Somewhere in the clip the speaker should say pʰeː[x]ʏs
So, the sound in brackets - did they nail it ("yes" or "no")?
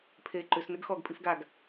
no